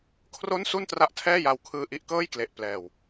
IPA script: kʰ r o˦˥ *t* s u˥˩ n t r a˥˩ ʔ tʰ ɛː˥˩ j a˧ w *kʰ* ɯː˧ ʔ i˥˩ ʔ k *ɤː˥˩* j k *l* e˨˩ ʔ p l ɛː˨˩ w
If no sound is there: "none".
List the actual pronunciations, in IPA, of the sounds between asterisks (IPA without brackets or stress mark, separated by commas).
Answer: n, kʰ, ɤː˥˩, l